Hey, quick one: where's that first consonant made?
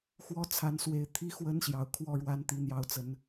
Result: velum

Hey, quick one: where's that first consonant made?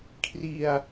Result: velum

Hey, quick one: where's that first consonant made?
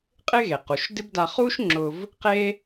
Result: uvula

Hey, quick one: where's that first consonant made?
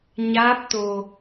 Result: palate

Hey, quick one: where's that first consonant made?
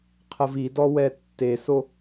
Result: uvula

